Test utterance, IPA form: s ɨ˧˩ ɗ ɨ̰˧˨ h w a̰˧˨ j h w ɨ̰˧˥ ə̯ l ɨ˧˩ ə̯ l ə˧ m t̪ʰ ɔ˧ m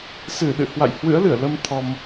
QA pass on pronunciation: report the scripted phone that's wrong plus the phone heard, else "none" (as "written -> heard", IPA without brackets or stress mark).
none